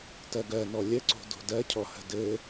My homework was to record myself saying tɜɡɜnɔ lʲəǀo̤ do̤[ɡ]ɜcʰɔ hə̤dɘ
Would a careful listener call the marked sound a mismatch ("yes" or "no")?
yes